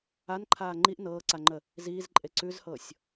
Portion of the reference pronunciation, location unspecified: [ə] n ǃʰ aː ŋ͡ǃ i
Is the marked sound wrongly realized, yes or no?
yes